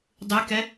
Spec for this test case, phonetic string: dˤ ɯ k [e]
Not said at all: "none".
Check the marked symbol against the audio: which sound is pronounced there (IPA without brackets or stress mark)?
ɛ